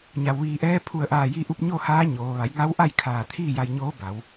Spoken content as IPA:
ɲ a˩ w ʋ iː˧˩ ʔ ɛː˧˥ pʰ u˧˩ ə̯ ʔ aː˧˩ j i˧ ʔ u˧ p̚ ɲ o˥˨ h aː˧˥ ɲ oː˩˧ ʋ a˩˧ j ŋ a˧˥ w ʔ a˥˨ j kʰ aː˧˩ t̪ʰ iː˥˨ j a˧ j ɲ oː˧˥ b a˩˧ w

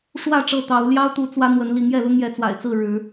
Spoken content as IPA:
ʂ w ä˥˨ ʈ͡ʂ ɤ˥˨ t̪ ɑ˨˦ ʊ̯ l j ɑ˦ ʊ̯ t̪ u˨˦ t͡s w ä˦ n̪ w ə˨˦ n l i˨˦ ŋ j ɛ˥˨ l ʊ˦ ŋ j ɛ˨˦ t͡s w a̰˨˩ ɪ̯ t͡s ɹ̩˥˨ ɻ ɻ̩˨˦

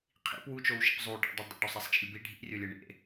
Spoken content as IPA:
qʰ ḭ p w u t͡ʃ o w ʃ ḭ p zˤ u ɖ a̰ dˤ e dˤ ḭ ɖ o sˤ e sˤ t͡ʃ ḭ lʲ b i ɖʱ ḭ rʲ o lʲ ɛ ɳ ḛ

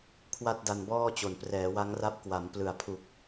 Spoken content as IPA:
kʰ w a˥˩ t̚ d a˧ n b ɔː˥˩ t͡ɕ o˨˩ n p r ɛː˩˦ w a˦˥ ŋ r a˦˥ p̚ k w a˩˦ m p l ɯ˨˩ a̯ pʰ u˨˩ k̚

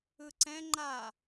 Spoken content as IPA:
ɯ ǀ ɛ̃ ŋ͡ǃ a

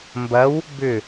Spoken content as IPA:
m b ɐ w | b ʏ

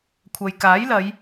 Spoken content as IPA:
kʷʰ ɐ˨ j k aː˨˥ j l ɐ˨˧ j

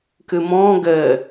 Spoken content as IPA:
k ɨ m ɔ̃ ɡ ɘ

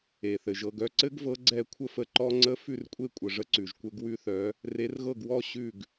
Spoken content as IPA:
e˩ θ ɘ˩ ʒ ɤ˥˩ ɡ œ˥˩ ǀ ɘ˦˥ ɡ v ɤ˨˥ ɡ͡ǀ ɛ˥˩ kʷʰ ə˦˥ f ə˨˥ ǃ ɔ˦˥ ŋ͡ǀ ə˦˥ f ʉ˥˩ r kʷʼ e˥˩ kʷʼ ə˩ ʐ ə˨˥ ǀ ʉ˩ ʒ kʷ ɘ˦˥ ɡ w ʉ˦˥ θ œ˨˥ | r e˨˥ r ɣ ɤ˥˩ ɡ w ɔ˥˩ ɕ ʉ˥˩ ɡ

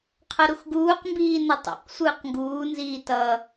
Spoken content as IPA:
qʰ ʌ ɾ u x ɡ uː q m b iː n ʌ tˤ ɛ̰ q sʷ ɯː q ŋ ɡ uː n z iː t ʌ

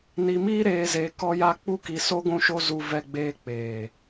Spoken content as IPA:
n i˧ m iː˦ ɾ eː˧ z eː˧ k ɔ˦ j a˦ k͡p u˦ k i˧ s o˦ ɡʷ ũ˦ ʃ o˦ z u˧ v ɛ˧ ɡ͡b eː˧ k͡p eː˨

